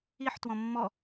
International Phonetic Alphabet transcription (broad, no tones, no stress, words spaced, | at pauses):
iħ twɔ̃mːɔ